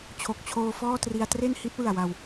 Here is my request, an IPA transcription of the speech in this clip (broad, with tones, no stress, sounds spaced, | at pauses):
t͡ɕʰ o˨˩ k̚ t͡ɕʰ oː˧ f ɔː˥˩ t r i˧ a̯ t r e˥˩ n h i˦˥ t̚ w ɯ˨˩ a̯ w a˧ w